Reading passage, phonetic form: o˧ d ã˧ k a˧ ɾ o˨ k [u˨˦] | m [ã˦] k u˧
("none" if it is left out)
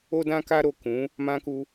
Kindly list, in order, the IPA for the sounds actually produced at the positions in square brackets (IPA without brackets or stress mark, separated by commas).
ũ˨˦, ã˧